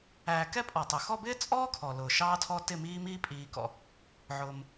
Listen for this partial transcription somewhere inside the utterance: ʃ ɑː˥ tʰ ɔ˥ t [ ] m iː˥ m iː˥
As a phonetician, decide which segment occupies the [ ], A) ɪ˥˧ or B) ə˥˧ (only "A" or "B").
A